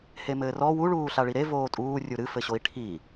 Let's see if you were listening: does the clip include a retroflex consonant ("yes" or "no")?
yes